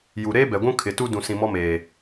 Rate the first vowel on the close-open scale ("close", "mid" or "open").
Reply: close